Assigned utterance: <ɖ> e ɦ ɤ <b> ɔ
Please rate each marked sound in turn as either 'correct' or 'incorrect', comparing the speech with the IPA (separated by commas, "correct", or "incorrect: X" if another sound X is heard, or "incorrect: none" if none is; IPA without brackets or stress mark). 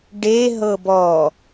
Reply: correct, correct